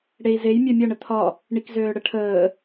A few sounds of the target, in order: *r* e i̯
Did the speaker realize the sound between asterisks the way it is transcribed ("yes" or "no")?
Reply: no